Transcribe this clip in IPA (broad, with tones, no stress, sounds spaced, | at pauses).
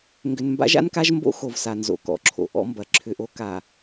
ŋ ɡ ʏ˨ n m b a̰˦ ʒ a̰˦ n k a˦ ʒ m b o̰˦ x o˨ v s a˨ n z o̰˨ k ɔ̰˨ ǁʰ o̰˨ ʔ ɔ̰˦ m b ɐ˨ ǁʰ ʏ˨ ʔ o˦ k a˨